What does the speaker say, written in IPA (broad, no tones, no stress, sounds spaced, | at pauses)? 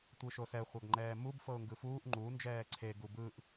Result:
tʷ ɯ ʃ o s ɛ χʷ a ɡ ŋ͡ǃ ɛː m u b f ɤ ʊ̯ ŋ ɡ ɯ f uː ʔ ŋ͡ǃ u n d͡ʒ ɛː ǀʰ e ɡ u b ɯ ʔ